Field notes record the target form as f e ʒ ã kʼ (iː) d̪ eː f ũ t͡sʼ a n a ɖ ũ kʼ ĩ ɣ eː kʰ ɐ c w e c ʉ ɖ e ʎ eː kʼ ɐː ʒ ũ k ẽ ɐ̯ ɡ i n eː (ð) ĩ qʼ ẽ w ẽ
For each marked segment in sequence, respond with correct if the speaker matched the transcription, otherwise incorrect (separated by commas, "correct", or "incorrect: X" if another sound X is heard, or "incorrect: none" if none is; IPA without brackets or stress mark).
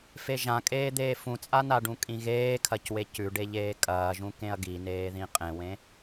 incorrect: eː, correct